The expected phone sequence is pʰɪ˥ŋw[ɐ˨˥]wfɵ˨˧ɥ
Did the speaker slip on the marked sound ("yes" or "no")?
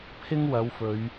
yes